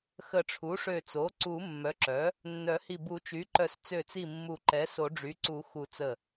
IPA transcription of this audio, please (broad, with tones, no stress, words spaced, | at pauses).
xə˨˩˦ʈ͡ʂʰu˩˥ʂø˧˩t͡so˩˥ ǀu˨˩˦mːœ˩˥ǁœ˩˥ | nːœ˨˩˦hi˧˩ bu˨˩˦t͡ʃy˩˥ǃœ˨˩˦s t͡sø˧˩t͡si˧˩mːu˨˩˦ ǃɛ˩˥so˨˩˦ɖ͡ʐy˩˥ǀu˨˩˦ xu˨˩˦t͡sə˧˩